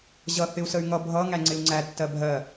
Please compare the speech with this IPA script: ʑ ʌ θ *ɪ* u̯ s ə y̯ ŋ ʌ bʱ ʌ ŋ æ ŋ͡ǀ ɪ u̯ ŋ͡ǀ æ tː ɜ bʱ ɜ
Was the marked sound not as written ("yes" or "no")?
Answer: no